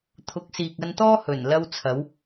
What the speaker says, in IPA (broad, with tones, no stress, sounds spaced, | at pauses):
t̪ʰ ʊ˨˥ k̚ s iː˨ k̚ ɐ˧ n t̪ ɔː˥ h ɵ˨˩ n l ɐ˥ w t͡sʰ ɐ˨˥ w